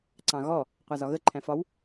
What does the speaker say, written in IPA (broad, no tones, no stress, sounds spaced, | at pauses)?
ǀ ɑ̃ ɣ ɔ | qʷ æ z ɒ ɣ ə ǃʰ æ̃ f ɒ w